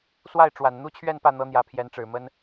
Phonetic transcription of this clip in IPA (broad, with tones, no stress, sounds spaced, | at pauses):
s w a˥˩ ɪ̯ ʈ͡ʂ w a˨˩ n n̪ u˥ t͡ɕʰ ɥ ɛ˥˧ n p ä˥˩ n̪ ɤ˥ n̪ j ä˧˥ pʰ j ɛ˧˥ n ʈ͡ʂ ɻ̩˨˩ m ə˥ n